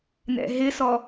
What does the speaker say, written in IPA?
n ɛ̰ ɦ ɪ s ɔ

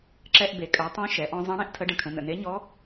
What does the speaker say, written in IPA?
ǁ ɛ˧ ʔ b e˩˧ kʼ œ˩˧ tˤ õ˧˥ ʃ ɛ˩˧ ʔ ɔ̃˥ zˤ ẽ˧˥ ɽ ẽ˥ ʔ tʰ ə˧˥ ɖ ə̃˧ kʰ ə̃˩˧ n ə̰˩ n e˧˥ ɲ ɔ˧˥

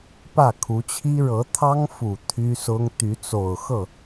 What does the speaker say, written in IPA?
p ä˥˩ kʰ u˧˥ t͡ɕʰ i˥ ɻ ɤ˧˥ t̪ʰ ɑ˥ ŋ f u˨˩ t̪ʰ y˥ s ʊ˥ ŋ t̪ y˧˥ t͡s o˨˩ ʊ̯ x ɤ˥˩

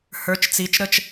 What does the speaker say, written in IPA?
h ə˞˨˦ t͡ʃ t͡s i˨˦ t͡ʃ ɾ ə˥˨ t͡ʃ

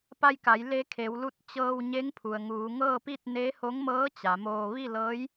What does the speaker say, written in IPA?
p a˧ j k a˩˧ j l e˧ kʰ e˩˧ w l u˧ t̚ t͡ɕ ɤː˧ w ɲ e˧˥ ŋ pʰ u˩ ə̯ ŋ uː˩˧ ŋ ɤː˥˨ p i˥˨ t̚ n eː˧˥ h o˧˥ ŋ m ɤː˧˥ t͡ɕ a˩˧ m oː˧ ʋ i˥˨ l ɤː˧˥ j

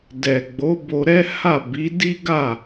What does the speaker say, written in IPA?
d ɛ˨ ɡ͡b o˨˦ b o˧ ɾ ɛ˦ h a˦˨ b i˨˦ d i˦ ɡ a˦˨

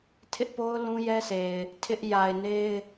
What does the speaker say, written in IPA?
tʰ ɪ˦ ʔ p o˦ ʊ̯ l ũ˦ j ɛ˦ sʰ e˨ ɪ̯ | tʰ ɪ˦ ʔ j a˨ ɪ̯ n e˦ ɪ̯

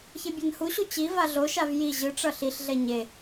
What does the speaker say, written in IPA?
ç e bʲ a n h u ɕ u t͡ɕ i v a ɮ o ʃ a v j i ʑ ɯ ʈ͡ʂ ʌ ɬ i ɬ ɮ ɛ ɲ e

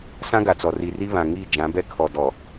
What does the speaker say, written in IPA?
s ã˦ ɡ a˨ t͡s ɔ˨ r i˨ r i˦ β ã˨ ŋ i˦˨ d͡ʒ ã˨˦ b ɛ˦ kʰ ɔ˨ d ɔ˨

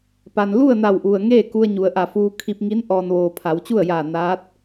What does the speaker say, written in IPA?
p a˩ n l u˥˨ ə̯ n a˧˩ w ʔ u˩ ə̯ ŋ eː˥˨ k u˧ ə̯ ɲ u˩˧ ə̯ ʔ a˧˩ f uː˧ kʰ i˧ p̚ ŋ i˧˥ n ʔ ɔː˩ n ʋ oː˩ pʰ a˩˧ w t͡ɕ u˥˨ ə̯ j aː˧˩ n aː˧˥ t̚

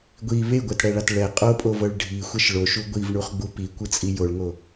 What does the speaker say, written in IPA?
ɡʷ i β e ɡʷ ɛ t ɽ ɛ ɭ a t ɭ ɛ qʼ o pʼ o v ɤ ɭ ɖʱ i xʷ ɛ ʃ ɭ o ʃ u ɡʷ i v ɳ u χ ɡ͡b u p i kʷ ɯ t͡sʼ i j o ɭ ŋ o

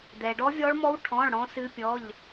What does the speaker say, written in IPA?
d̪ ɛ˨ ɖ ɔ˦˥ vʲ ɔ˦˥ ɭ m ɔ˦˥ w ʈʰ ɔ̃˧˥˧ ɭ ɽ ɔ̃˦˥ s ɨ˦˥ pʲ ɔ˧˥˧ ʎ

